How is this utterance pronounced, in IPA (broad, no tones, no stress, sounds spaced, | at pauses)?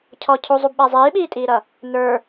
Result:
cʰ ɔ cʰ u zˤ u b ɓ æ zˤ iː ɓ iː tʼ iː ɾ ʌ | n ə˞